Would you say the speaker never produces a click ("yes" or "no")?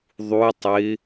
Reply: yes